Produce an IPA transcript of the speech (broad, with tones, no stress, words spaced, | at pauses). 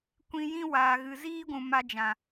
kʷĩ˧ jĩ˦waː˨ɣɨ˨ ziː˦ɡʷũ˨ ma˧d͡ʒã˨